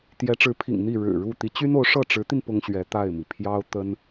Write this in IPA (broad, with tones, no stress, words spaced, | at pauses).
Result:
t̪jɛ˧˥ʈ͡ʂɻ̩˧˥pʰḭ˨˩ŋ n̪i˥˩ɻɻ̩˨˩ɻu˥˩ t̪i˧˥t͡ɕy˥n o˧˥ʊ̯ ʂɤ˥˩ʈ͡ʂɻ̩˧˥t̪i˧n pʊ˥ŋɕɥɛ˧˥t̪a˥˩ɪ̯mi˩ pʰjɑ˥ʊ̯ t̪ə˥n